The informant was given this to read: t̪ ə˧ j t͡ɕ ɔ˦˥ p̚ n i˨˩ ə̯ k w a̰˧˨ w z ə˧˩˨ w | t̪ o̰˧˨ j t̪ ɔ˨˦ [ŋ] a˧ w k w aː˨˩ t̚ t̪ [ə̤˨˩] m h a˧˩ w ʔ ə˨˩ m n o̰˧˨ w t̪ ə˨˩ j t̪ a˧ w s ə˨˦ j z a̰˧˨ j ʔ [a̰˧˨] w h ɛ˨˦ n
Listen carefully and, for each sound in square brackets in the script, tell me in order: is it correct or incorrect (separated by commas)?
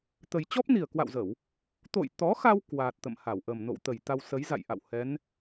incorrect, incorrect, correct